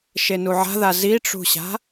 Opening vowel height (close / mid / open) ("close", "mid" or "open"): mid